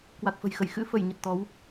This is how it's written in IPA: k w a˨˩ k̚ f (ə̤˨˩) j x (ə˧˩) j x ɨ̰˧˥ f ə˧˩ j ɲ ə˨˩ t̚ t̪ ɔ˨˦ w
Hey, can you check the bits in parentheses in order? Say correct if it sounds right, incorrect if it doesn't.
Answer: correct, correct

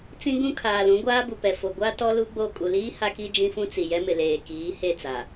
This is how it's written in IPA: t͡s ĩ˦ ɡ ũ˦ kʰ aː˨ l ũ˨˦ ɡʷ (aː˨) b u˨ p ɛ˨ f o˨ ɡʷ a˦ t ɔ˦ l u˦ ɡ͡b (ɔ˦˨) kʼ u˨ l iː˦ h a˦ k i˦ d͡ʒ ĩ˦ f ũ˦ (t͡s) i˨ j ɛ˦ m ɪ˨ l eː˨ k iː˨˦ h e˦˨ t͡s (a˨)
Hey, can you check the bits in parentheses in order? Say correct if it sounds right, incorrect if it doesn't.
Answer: incorrect: aː˦, incorrect: o˦˨, correct, correct

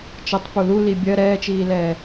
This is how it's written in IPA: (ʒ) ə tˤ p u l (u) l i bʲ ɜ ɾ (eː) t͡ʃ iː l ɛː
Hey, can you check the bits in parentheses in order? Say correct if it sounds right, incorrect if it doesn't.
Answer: incorrect: t͡ʃ, correct, incorrect: ɛː

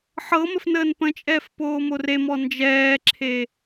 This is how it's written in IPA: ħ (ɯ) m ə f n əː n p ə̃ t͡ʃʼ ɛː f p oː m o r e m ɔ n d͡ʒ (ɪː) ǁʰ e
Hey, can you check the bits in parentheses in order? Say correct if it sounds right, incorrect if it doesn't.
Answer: incorrect: ɤ, incorrect: ɛː

